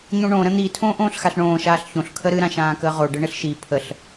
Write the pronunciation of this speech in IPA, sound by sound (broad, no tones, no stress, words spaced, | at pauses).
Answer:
ɲõɳõ ɾə̃n̪i tʰõːʔõːɬxaɬɳõː ʃaːɬçõɬ kʰəɾɨ ɾãʃãːkəːʁo ɖɘɳɘɬʃi pʰəɬ